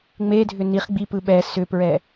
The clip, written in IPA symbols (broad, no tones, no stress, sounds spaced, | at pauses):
ŋ͡m e dʱ ʏ n i χ ɡ͡b i p ɯ ɓ ɛ s ʏ p ɹ ɛ